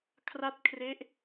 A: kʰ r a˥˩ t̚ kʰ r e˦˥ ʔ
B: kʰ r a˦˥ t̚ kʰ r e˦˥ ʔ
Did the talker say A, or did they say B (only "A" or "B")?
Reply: A